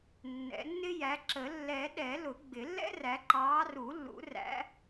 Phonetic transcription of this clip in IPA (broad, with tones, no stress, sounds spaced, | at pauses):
nː ɛ̰˨˩˦ nː ɪ˥ j æ˨˦ ǁ ə˨˩˦ lː ɛː˨˩˦ ɗ ɛ˨˩˦ l ʊ˨˩˦ ɡ͡b ɪ˨˩˦ lː ɛ̰˥ r æ˨˦ ǃ ɑː˨˦ r u˨˩˦ lː ṵ˨˩˦ r æ̰˨˦